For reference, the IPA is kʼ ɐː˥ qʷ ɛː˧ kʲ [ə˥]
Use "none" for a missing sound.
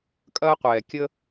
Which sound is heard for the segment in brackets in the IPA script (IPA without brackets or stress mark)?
ə˥